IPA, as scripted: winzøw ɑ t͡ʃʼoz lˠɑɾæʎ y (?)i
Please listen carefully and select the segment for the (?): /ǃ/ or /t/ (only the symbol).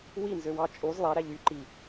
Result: ǃ